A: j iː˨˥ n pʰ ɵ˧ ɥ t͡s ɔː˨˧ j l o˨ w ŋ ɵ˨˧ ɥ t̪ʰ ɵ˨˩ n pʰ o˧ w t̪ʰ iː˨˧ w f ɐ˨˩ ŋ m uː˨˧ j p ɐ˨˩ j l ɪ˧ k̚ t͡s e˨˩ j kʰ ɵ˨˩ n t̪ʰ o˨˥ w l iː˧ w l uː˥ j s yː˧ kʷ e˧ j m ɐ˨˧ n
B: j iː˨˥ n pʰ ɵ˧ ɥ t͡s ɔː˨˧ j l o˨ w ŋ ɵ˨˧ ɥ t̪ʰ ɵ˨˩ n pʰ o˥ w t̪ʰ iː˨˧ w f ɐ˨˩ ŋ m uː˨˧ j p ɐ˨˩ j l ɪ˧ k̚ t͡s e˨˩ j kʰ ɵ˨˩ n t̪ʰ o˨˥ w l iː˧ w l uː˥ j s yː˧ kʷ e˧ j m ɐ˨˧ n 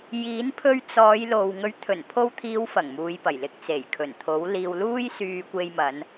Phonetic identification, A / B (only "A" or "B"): A